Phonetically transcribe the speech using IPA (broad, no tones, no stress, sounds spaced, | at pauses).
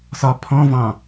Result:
s ɒ pʰ ɔ̃ v ɑ̃